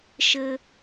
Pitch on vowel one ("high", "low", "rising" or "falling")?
high